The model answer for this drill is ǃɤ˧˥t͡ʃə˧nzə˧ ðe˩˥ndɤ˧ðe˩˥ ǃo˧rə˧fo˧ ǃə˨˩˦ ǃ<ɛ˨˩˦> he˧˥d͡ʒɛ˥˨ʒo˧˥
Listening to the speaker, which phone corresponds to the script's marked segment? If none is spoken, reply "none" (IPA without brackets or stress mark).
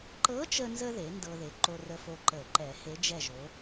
ɛ˨˩˦